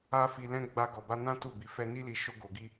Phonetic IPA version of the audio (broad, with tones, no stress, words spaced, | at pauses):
a˦ fi˧lɛ̃˦ ɡ͡ba˧ɡɔ˨ba˧nã˦ tu˦˨bi˨˦fɛ˦ ni˦li˧ ʃo˦ɡo˧ɡi˦